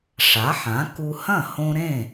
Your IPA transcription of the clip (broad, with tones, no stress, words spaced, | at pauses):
ʂa˩˥ħã˩˥ ku˧hɐ̃˥˩ hõ˧ ɾẽ˥˩